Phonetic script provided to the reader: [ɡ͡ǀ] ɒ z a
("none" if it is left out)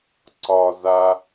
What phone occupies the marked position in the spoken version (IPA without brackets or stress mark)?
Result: ǀ